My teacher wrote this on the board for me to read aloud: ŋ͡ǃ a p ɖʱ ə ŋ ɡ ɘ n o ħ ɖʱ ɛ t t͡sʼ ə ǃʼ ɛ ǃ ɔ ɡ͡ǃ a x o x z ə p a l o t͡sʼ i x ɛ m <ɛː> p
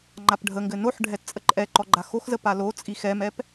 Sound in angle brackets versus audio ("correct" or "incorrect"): incorrect